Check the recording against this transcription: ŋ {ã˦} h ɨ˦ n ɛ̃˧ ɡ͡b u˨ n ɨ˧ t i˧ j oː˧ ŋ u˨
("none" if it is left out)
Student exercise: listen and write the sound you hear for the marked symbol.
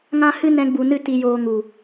ã˦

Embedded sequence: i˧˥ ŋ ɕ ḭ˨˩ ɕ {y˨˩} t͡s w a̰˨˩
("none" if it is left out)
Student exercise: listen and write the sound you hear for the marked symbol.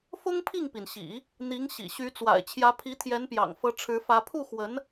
y˧˥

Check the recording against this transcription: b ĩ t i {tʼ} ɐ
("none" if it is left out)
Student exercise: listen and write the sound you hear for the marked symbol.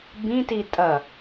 tʼ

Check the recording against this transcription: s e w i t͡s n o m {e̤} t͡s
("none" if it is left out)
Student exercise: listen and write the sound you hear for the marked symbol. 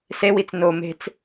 e̤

